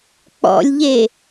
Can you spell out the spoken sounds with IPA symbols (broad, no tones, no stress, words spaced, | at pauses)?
k͡pɔ̰lʲʎe